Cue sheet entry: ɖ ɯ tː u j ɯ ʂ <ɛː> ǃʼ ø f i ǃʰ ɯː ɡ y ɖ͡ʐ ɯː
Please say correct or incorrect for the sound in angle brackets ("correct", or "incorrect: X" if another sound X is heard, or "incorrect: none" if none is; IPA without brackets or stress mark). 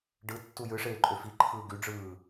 incorrect: eː